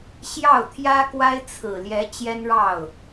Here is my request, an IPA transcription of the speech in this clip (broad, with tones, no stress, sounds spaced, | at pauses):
ɕ j ɑ˥˩ ʊ̯ t̪ʰ j ä˥ k w a˥ ɪ̯ t͡sʰ ɹ̩˨˩ l j ɛ˧˥ t͡ɕ j ɛ˥ n ɻ ɑ˥˩ ʊ̯